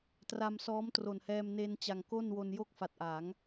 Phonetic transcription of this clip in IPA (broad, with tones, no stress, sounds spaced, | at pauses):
t r a˧ m s ɔː˦˥ m t r o˨˩ n h ɛː˧ m n e˧ n t͡ɕ a˨˩ ŋ k o˥˩ n w o˧ n j o˥˩ k̚ f a˨˩ t̚ ʔ a˩˦ ŋ